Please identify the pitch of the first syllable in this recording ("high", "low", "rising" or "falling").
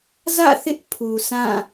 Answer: falling